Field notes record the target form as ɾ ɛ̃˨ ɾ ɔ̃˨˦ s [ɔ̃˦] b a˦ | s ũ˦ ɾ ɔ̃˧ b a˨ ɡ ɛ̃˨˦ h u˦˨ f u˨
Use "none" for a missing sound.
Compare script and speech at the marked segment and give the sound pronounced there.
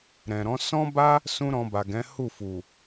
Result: ɔ̃˦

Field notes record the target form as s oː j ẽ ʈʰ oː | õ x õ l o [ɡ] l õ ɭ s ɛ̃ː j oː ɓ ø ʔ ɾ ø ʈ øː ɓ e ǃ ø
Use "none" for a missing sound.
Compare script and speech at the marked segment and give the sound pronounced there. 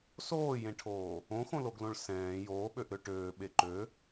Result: ɡ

